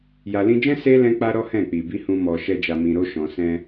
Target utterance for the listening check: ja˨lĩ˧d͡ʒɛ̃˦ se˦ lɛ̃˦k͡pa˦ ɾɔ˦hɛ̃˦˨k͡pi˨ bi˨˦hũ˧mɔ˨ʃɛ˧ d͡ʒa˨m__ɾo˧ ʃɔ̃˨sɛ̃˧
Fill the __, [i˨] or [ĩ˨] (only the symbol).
ĩ˨